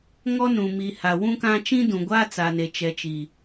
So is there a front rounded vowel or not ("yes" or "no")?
no